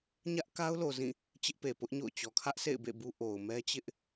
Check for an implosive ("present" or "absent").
absent